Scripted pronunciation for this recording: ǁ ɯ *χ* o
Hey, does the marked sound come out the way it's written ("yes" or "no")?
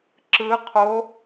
no